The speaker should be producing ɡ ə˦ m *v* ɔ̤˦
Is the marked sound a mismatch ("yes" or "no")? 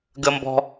yes